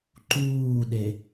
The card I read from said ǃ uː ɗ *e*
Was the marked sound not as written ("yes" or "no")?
no